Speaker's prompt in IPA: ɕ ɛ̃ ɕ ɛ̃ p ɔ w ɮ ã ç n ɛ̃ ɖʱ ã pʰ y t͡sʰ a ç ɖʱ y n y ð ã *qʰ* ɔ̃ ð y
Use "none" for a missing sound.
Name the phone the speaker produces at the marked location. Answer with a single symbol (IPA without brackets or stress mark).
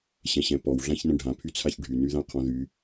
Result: qʰ